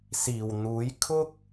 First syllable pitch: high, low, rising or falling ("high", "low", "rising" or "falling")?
low